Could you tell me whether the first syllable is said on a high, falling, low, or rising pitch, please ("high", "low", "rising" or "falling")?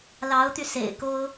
rising